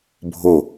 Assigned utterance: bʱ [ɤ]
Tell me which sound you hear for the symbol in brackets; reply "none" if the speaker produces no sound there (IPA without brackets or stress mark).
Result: o